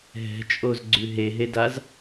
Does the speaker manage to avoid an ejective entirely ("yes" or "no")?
no